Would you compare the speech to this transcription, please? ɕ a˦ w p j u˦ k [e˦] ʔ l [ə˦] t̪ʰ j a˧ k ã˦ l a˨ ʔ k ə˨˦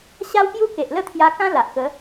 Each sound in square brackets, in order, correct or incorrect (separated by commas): incorrect, incorrect